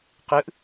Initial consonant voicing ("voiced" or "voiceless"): voiceless